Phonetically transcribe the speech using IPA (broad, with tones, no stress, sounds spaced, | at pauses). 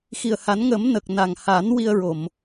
x i˨˩ ə̯ h a˨˩˦ n ŋ ə˨˩˦ m n ə˨˩ k̚ n a˨˩ ŋ h a˨˩˦ n w i˧ ə̯ ɹ o˨˩˨ m